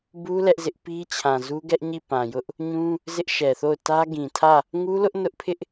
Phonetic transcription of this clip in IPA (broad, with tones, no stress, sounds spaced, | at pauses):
b u˦ l ɛ˦ ʔ z ɪ˦ ʔ p i˦ t͡ɕʰ ã˨ z u˦ ɡ ɛ˦ ʔ ɲ i˦˨ p ã˨ j ʊ˦ ʔ | ɲ ũ˦ | z ɪ˦ ʔ ʃ ɛ˨ θ o˦˨ ʊ̯ t ä˦ ɡ ĩ˨ tʰ ä˦˨ | ŋ u˦ l ʊ˦ ʔ n ʊ˦ ʔ pʰ ɪ˦ ʔ